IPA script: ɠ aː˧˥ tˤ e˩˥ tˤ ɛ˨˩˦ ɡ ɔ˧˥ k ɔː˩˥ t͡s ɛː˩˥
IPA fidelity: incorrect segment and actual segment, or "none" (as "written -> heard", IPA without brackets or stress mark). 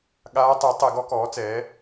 none